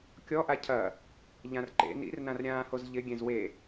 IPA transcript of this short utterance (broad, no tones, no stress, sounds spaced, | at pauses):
kʲ ɔ ʔ a cʰ ɐ | ʎ ã r ǃ ḛ n ḭ r n ã r ɾʲ ãː h o z ʎ ɪ ɡʲ ẽ z w e